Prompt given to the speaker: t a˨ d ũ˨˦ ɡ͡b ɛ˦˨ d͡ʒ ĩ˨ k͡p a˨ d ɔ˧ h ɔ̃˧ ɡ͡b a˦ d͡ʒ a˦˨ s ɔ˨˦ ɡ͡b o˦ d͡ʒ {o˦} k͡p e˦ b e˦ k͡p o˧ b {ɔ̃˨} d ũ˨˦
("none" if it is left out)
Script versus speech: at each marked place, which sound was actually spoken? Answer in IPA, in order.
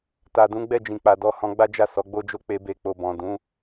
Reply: o˦, ɔ̃˨

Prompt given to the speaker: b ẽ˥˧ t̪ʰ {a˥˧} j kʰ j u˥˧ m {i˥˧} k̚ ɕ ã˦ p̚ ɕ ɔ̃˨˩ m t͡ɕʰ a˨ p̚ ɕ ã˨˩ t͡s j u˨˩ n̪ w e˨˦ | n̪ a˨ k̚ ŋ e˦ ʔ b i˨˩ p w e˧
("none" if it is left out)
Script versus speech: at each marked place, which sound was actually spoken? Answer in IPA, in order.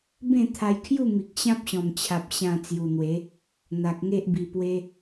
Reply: a˧, i˨

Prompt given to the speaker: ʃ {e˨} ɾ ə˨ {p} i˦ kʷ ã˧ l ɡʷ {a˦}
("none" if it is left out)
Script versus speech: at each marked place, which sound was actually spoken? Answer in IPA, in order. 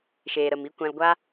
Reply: eː˨, m, a˦

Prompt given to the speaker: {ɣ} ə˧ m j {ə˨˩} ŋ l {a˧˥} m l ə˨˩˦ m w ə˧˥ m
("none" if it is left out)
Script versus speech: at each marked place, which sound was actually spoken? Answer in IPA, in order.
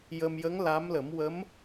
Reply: j, ə˧˥, a˧˥

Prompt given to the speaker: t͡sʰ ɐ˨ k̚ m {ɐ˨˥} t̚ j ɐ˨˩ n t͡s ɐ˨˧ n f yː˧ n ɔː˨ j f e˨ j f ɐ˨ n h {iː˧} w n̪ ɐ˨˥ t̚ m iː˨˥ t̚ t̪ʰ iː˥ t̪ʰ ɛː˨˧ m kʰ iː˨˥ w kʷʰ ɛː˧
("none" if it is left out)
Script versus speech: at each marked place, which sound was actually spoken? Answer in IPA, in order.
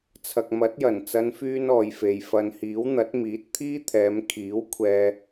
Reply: ɐ˨˥, iː˨˥

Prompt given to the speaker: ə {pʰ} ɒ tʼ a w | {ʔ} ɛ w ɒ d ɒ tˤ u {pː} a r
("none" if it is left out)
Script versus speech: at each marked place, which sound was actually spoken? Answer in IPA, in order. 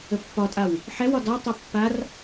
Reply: pː, ħ, pː

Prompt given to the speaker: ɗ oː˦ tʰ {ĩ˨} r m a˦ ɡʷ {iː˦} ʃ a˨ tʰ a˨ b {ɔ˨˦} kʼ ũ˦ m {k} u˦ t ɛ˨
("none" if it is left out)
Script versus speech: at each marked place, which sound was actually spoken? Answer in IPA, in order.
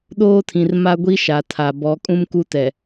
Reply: ĩ˨, i˦, ɔ˨˦, k

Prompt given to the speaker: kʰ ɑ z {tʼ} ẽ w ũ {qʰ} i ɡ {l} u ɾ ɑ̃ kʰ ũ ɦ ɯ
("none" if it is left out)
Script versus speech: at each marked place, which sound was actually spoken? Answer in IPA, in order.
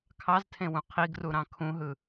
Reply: tʰ, qʰ, r

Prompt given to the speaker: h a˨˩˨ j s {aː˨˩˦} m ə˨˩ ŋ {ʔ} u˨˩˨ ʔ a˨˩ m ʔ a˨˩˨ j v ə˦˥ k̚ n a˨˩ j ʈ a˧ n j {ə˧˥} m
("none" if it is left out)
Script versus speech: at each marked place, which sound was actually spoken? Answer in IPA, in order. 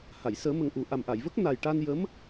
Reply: əː˨˩˦, ʔ, ə˧˥

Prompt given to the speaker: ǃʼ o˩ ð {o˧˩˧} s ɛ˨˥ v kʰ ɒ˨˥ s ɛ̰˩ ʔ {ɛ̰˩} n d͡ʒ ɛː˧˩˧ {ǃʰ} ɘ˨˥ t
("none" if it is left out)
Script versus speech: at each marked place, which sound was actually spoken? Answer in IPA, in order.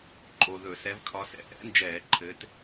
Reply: ɵ˧˩˧, ɛ̰˨˥, ǃʰ

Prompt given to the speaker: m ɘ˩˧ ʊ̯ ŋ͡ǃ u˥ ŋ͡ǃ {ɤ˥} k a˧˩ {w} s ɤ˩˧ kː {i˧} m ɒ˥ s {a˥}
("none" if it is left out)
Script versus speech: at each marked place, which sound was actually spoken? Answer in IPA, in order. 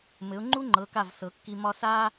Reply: ɤ˩˧, v, i˧, a˥

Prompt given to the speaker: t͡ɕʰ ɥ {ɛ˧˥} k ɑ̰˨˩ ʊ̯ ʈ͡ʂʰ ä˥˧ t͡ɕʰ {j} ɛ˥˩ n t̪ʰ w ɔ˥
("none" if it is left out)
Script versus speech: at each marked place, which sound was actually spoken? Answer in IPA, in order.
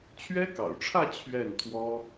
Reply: ɛ˥, ɥ

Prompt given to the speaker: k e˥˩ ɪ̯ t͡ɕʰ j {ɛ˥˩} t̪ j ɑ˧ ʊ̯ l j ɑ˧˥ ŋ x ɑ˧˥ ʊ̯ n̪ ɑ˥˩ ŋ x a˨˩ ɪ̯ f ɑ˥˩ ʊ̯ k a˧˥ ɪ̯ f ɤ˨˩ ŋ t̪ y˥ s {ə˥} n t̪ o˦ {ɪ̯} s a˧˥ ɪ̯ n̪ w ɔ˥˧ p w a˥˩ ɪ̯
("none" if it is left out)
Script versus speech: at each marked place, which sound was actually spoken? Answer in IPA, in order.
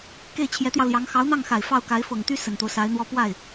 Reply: ɛ˧˥, ə˨˩, ʊ̯

